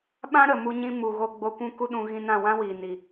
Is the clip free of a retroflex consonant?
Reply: yes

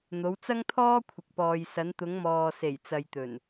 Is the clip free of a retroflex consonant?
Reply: yes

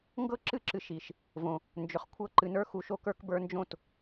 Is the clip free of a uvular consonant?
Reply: no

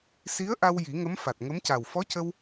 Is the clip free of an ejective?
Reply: yes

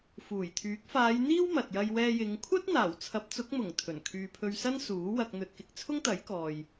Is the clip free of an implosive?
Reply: yes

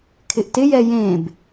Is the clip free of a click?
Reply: yes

